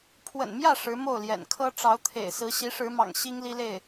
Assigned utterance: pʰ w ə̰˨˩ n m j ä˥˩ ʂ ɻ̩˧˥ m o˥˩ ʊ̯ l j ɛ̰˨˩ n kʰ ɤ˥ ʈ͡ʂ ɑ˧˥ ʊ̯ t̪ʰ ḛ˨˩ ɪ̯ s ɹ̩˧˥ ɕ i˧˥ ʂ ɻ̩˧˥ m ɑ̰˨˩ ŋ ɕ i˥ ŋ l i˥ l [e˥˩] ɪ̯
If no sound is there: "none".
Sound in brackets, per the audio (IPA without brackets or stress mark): e˥˩